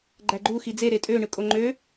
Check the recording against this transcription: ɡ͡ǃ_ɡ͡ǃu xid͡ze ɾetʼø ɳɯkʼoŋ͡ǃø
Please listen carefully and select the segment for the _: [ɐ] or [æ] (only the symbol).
æ